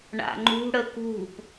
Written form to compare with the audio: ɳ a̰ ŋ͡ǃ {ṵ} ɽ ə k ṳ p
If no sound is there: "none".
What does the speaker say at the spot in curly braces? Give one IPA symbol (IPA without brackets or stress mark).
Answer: ṳ